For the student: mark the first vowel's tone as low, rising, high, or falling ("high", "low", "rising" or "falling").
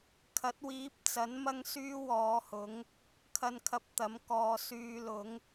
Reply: rising